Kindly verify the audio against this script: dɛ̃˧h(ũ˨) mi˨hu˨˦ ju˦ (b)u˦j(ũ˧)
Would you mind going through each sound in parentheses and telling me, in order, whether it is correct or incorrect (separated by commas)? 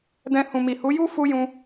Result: correct, incorrect, correct